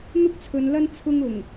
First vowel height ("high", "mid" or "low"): high